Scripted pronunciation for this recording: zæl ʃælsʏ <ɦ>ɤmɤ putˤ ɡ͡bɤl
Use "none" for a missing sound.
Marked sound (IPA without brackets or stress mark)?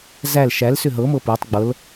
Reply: ɦ